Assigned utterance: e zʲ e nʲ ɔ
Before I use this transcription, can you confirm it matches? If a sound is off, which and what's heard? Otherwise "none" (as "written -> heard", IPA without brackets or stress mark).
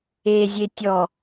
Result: nʲ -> tʲ